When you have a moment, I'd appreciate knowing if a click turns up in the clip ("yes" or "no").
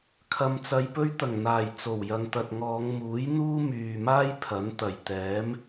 no